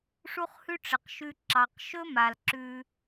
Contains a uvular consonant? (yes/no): yes